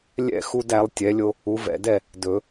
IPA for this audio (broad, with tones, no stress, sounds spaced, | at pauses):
lʲ ɛ̰˥˨ x u˦ d æ˩˥ lˠ tʲ ɛ˩˥ lʲ o˦ | u˩˥ v ɛ̰˨ d ɛ˥˨ | d ɵ˨˩˦